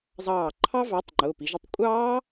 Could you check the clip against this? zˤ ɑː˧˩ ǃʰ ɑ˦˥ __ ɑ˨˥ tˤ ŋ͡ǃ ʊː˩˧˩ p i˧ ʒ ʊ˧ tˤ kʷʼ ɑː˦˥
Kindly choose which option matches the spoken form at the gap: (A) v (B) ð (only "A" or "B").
A